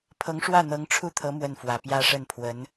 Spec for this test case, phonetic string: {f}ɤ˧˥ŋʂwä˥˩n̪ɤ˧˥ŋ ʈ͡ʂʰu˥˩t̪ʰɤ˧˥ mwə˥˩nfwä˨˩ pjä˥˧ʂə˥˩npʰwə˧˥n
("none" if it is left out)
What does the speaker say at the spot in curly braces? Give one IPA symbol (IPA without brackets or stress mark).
pʰ